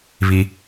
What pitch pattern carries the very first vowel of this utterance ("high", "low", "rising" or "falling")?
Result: high